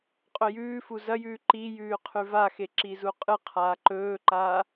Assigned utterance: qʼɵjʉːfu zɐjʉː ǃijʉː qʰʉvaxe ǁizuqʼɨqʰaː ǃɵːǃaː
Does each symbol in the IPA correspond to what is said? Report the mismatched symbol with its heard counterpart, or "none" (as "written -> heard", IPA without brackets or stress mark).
none